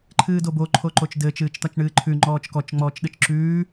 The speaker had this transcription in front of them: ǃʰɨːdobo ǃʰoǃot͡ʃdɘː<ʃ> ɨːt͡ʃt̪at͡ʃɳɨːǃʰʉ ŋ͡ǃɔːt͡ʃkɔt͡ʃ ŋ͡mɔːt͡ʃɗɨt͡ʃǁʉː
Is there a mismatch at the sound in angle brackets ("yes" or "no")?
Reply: yes